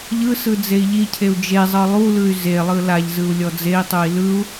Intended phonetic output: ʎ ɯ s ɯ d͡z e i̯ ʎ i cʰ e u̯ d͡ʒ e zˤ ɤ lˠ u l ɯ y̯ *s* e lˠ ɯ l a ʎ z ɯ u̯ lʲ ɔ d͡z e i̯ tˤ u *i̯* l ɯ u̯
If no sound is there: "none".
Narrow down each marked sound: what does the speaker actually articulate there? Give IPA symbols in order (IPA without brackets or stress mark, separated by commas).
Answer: z, i̯